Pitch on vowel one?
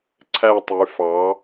falling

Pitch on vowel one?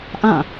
falling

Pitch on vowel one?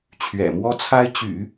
low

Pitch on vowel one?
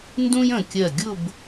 high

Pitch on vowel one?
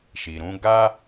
low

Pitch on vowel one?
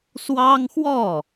high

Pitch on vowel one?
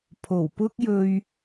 low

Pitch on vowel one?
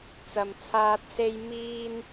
low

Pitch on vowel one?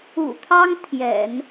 low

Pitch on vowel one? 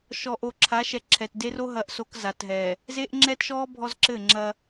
low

